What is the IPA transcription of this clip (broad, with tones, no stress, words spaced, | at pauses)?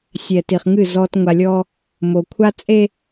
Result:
sʲɛ˨ti˨χŋɨ˦˨ zɔ˦t ŋʷa˨lʲɔ˦ | mo˨ kʷʰa˦t͡sʼe˦